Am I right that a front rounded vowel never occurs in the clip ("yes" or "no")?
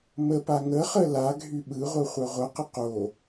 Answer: no